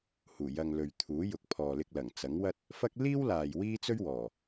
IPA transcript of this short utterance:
h uː˨˩ j ɐ˨ ŋ l ɵ˨ ɥ t̪ʰ uː˨˥ j ʊ˨˥ k̚ pʰ ɔː˨ l ɪ˧ k̚ l ɐ˨˩ ŋ t͡s ɐ˨˥ ŋ w ɐ˥ t̚ | f ɐ˥ k̚ l iː˥ w l aː˨ j w iː˥ t͡s ɵ˥ ɥ w ɔː˨˩

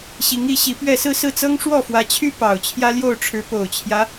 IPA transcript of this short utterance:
ɕ i˧˥ ŋ i˧˥ ɕ i˧˥ p ɥ ɛ˥˧ s ɹ̩˥˧ s ɹ̩˥˩ t͡s ɤ˥ ŋ ʂ w ɔ˥˩ f w ä˧˥ t͡ɕʰ y˥ p ɑ˨˩ ʊ̯ t͡ɕʰ j ä˥ l j o˥˩ ʊ̯ ʈ͡ʂʰ ɻ̩˧˥ p o˨˩ ʊ̯ t͡ɕʰ j ä˦

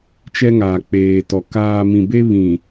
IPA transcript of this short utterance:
t͡ʃ ɛ˦ ŋ aː˨ k͡p eː˨ t ɔ˨ k aː˨ m ĩ˨ b e˦ β ĩ˨

